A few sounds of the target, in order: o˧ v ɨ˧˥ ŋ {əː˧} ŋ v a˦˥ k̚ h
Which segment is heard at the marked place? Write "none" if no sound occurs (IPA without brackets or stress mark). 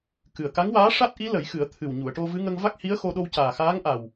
ə˧